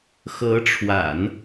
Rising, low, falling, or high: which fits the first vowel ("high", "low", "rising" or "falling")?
rising